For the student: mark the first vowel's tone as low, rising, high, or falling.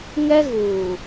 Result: high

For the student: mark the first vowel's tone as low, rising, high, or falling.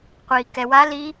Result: low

